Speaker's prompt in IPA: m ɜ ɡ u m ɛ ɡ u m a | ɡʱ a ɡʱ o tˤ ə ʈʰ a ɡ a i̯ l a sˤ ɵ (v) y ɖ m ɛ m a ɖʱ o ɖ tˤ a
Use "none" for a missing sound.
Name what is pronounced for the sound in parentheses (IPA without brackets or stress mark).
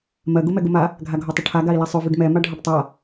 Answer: v